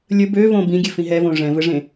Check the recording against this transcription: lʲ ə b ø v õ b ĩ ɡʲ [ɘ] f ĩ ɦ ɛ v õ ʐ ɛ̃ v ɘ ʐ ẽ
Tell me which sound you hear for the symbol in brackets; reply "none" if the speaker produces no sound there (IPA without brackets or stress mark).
ɘ